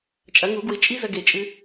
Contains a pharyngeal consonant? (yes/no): no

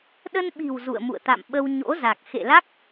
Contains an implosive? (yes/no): yes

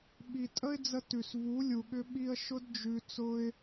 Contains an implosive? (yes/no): yes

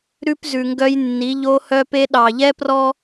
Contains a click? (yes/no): no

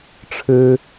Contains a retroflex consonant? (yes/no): yes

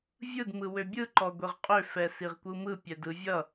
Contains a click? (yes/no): yes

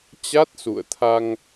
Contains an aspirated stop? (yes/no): yes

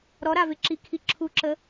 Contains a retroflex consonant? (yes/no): no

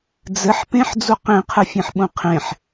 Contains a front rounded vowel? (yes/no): no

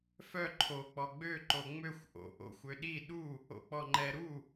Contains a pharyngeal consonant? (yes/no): no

